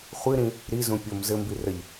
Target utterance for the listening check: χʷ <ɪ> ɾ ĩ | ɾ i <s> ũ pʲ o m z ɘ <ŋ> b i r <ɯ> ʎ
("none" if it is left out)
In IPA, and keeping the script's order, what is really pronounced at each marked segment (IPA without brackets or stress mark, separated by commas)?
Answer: ɨ, z, m, ə